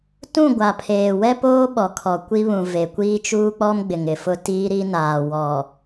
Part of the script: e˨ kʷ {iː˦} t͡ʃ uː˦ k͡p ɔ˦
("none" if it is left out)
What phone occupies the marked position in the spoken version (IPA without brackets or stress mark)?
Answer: iː˦